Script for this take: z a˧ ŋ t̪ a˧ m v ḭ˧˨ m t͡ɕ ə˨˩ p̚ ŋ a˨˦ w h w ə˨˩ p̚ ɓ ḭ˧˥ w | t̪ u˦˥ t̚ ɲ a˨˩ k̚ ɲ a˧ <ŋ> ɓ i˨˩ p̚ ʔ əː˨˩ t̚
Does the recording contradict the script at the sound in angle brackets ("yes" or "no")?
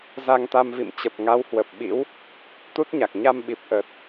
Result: yes